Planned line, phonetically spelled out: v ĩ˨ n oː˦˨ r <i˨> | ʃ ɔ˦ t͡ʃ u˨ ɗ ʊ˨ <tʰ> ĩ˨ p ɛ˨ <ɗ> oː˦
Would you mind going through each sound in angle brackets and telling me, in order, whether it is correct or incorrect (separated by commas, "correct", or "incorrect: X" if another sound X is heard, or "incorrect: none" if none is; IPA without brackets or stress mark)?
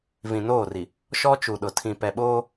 correct, correct, incorrect: ɓ